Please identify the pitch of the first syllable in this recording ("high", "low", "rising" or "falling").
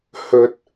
low